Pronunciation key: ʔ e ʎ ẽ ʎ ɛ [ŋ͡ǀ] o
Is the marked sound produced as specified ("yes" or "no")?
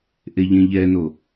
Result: no